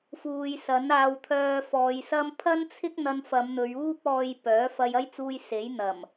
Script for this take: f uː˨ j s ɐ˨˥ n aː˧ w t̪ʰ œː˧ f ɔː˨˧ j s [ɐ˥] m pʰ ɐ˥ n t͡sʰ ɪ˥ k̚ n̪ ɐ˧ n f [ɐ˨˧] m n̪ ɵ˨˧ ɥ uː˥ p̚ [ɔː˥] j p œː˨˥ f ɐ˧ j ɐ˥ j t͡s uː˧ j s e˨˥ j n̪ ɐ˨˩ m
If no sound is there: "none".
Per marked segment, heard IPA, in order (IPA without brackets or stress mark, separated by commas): ɐ˥, ɐ˨˧, ɔː˧